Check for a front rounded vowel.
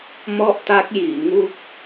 absent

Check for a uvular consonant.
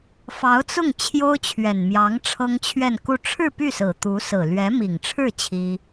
absent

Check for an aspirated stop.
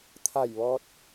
present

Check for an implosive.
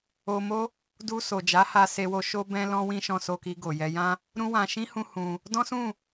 absent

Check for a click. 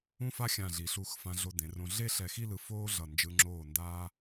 present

